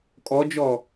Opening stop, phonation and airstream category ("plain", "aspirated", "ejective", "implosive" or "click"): ejective